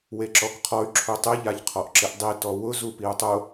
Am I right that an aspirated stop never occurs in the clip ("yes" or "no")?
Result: no